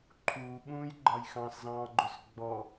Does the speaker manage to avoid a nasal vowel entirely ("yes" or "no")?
no